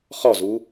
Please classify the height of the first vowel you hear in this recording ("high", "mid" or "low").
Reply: mid